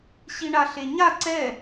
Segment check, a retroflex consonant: present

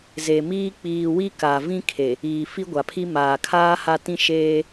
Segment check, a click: absent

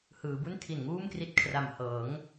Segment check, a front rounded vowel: absent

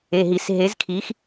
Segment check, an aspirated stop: present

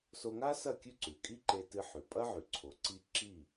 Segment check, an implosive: absent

